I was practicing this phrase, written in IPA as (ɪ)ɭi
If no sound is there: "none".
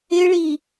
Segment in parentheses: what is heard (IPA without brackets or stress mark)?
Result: ɪ